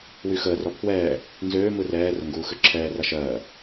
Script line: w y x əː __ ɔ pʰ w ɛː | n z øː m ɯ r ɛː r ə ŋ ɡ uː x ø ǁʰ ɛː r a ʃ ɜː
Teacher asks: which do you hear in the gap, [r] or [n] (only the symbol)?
r